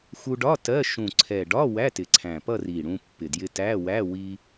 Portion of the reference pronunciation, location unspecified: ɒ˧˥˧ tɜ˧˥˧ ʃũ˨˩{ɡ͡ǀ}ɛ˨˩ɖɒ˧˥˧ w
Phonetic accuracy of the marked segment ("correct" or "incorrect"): incorrect